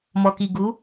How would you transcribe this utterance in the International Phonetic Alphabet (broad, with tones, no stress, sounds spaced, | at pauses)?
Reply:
m ɔ˨ k i˨ ɡ u˨˦